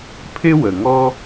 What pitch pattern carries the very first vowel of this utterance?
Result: high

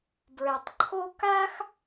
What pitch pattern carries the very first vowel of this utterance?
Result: low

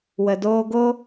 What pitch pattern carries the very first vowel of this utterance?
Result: low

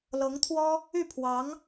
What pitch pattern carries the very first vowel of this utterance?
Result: rising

